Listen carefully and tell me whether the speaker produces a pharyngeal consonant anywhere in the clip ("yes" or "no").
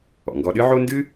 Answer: yes